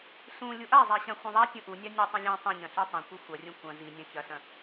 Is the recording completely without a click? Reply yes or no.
yes